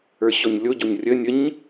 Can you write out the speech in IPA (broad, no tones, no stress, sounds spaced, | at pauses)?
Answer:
ə˞ ɕ ɔ ɲ lʲ o ɟ o ɲ rʲ ə nʲ ə ɲ